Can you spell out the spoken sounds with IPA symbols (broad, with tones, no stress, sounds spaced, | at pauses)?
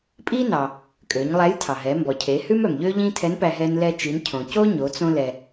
pʼ i˥ n ɑ˩ | kʼ ø˩˧ ɲ lˠ æ˧˥ j tʰ ɑ˩ ɦ ɛ˩˧ m b ɔ˩ cʰ e˩˧ h ʉ˥ m œ˩ m ʎ ø˥ ʎ ĩ˥ tʰ ɛ˧˥ n p æ˧ ɦ ɛ˧ n l ɛ˧ t͡ʃ i˩˧ n cʰ õ˩ c o˥ ɲ o˩˧ t͡s õ˧ l ɛ˩